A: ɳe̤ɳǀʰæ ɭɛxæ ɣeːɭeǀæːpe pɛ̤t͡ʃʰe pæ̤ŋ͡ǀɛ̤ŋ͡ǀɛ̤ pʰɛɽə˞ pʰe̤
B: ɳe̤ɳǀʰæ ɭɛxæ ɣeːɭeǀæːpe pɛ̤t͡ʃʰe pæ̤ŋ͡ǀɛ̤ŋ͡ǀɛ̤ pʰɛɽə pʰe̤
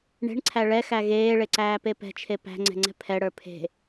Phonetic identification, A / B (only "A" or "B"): A